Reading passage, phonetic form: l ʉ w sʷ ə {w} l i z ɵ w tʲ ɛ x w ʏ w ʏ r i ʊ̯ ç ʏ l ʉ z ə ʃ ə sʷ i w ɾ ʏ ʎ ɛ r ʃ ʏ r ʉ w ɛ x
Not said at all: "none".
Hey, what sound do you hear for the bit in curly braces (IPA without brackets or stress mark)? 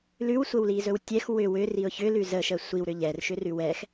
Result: w